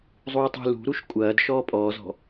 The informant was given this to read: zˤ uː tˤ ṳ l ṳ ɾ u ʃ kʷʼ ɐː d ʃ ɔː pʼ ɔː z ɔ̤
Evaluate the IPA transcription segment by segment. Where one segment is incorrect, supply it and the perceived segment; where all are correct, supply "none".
none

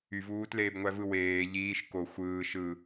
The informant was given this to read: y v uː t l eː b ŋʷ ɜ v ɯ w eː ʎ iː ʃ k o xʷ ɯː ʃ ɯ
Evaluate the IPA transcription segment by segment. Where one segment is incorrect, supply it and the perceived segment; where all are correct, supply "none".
ɜ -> æ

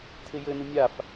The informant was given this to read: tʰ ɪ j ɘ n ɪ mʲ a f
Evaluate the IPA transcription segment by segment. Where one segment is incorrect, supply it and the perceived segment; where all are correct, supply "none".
none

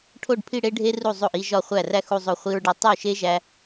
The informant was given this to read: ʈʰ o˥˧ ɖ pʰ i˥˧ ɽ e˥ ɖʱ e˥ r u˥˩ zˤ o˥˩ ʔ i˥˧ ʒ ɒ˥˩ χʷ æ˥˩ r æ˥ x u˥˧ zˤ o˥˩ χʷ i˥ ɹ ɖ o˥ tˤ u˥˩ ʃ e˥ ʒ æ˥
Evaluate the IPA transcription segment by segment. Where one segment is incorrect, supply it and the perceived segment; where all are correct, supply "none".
none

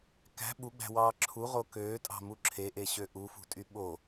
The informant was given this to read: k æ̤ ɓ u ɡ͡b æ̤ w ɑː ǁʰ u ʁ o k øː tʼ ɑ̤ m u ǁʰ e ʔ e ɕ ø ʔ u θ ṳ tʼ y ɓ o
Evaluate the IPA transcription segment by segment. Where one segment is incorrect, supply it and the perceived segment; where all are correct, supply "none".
θ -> f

